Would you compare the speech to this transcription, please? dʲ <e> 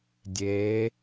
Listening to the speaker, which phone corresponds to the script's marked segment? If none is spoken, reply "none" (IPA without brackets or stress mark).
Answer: eː